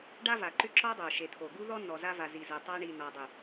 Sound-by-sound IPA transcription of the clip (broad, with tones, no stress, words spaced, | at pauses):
ɖa˦va˨ ǃʏ˦ǁɔ˦dˤo˨ ʃe˨t̪ʰo˨ ɡu˦ðɔ˦ nɔ˨za˦va˨zi˨ zɜ˨tˤa˦ ɳi˨nɔ˨ dˤʏ˨